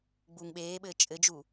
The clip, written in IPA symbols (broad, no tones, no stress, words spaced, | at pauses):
ɡ͡buːŋɓeːɓɘː t͡ʃʼɘd͡ʒu